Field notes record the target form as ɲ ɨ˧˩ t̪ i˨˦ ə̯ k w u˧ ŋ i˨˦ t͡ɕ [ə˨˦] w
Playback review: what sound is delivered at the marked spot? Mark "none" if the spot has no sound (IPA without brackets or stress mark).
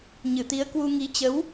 ə˨˦